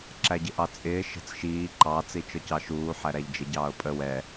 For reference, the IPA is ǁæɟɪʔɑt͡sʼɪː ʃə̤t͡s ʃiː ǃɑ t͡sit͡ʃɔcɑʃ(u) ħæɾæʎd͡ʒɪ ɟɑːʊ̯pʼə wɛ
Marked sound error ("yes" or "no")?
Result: yes